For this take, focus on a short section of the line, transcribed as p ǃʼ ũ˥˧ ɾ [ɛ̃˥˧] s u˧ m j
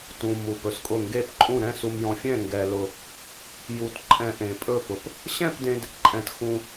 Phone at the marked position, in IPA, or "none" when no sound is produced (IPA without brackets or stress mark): ɛ̃˥˧